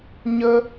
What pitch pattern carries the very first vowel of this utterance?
high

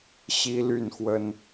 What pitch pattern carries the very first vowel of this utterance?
high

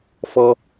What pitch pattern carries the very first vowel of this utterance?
low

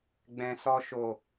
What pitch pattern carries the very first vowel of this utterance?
low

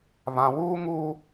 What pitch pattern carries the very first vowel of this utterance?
low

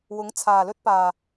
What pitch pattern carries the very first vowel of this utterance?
rising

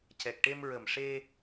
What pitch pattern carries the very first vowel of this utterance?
low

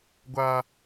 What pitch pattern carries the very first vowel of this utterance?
high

